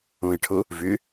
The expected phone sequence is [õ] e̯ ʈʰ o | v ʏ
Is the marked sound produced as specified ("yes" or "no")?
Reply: yes